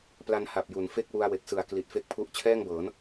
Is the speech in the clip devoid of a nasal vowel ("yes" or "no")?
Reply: yes